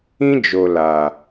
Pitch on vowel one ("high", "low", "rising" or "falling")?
high